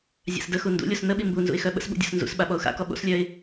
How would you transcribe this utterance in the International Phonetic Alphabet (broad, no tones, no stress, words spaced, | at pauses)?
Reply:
zʲa̰sdəxu ndṵlʲos nəɓi mbunzṵɪ̯ xœɓə̰sɓṵ dʲo̰snzṵsɓa ɓɔʊ̯xa̰kɔ ɓo̰slʲœɪ̯